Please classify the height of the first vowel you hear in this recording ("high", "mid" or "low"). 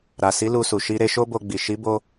low